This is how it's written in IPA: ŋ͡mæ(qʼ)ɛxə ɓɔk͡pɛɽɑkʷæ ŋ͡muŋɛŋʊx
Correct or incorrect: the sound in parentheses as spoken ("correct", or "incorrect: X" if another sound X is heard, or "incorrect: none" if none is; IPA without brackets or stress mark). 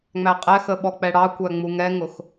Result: correct